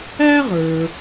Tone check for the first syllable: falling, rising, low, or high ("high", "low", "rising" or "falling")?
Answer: high